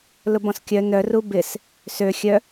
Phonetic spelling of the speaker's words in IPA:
l ʊ b ɔ̃ s kʲ œ n œ r u b ɪ s | s ø xʲ œ

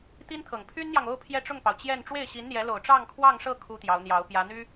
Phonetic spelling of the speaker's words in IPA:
t̪ i˥ n t̪ʰ ɤ˨˩ ŋ pʰ y˥ n n̪ j ɑ˨ ŋ o˥˧ ʊ̯ pʰ j ɛ˥˧ ʈ͡ʂ ʊ˥˩ ŋ p ɑ˩ ʊ̯ t͡ɕ j ɛ˥˧ n ʈ͡ʂ w e˥˩ ɪ̯ ɕ i˧˥ n n̪ j ɛ˧˥ l o˨˩ ʊ̯ ʈ͡ʂ ɑ˥˧ ŋ kʰ w ɑ˥˧ ŋ ʂ ɤ˥˩ kʰ u˥ t̪ j ɑ˧˥ ʊ̯ n̪ j ɑ˧˥ ʊ̯ p j ä˧˥ n̪ y˥

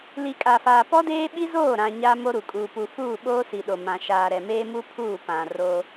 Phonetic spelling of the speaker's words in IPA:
l i˨ kʼ a˨ f aː˨ p ɔ˦ d eː˦ ɓ i˦ z oː˦˨ ɾ ã˨ ɲ a˦ m o˦ ɾ u˨ kʼ uː˨ p u˨ f uː˦˨ ɓ oː˦ s i˨ ɗ o˨ m ã˨ ʃ aː˨ ɾ ɛ˨ m eː˦ m u˦ pʰ uː˦˨ p ã˨ r o˦

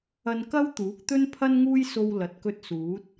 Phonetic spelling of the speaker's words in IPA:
ɐ˧ n k ɐ˥ w t̪ uː˨˥ k̚ t̪ ɵ˥ n pʰ ɐ˥ n ŋ uː˥ j s o˧ w l ɐ˨˥ t̚ k ɵ˧ t̚ s uː˨˥ t̚

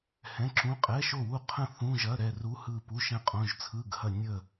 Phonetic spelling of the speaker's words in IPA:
h ɛ̃˧˥˧ ǁ ũ˧˥˧ qʼ ɛ˧˥˧ ʃ o˥˨ w u˥˨ qʰ ə̃˥˨ θ ũ˧˥˧ ʒ ɐ˧˥˧ ɾ ɛ˥˨ r u˧˥˧ h ɯ˥˨ p u˧˥˧ ʃ ɛ̃˥˨ qʼ õ˧˥˧ ʒ t͡sʰ ɯ˧˥˧ ɡ h ɐ˥˨ nʲ ə˥˨

